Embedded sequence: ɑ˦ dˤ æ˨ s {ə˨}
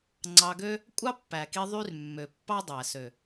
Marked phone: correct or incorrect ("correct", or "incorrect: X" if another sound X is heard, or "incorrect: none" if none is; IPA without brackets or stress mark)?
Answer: incorrect: ø˨